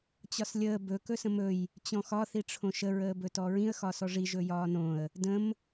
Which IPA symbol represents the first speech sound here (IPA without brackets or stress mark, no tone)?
t͡ɕ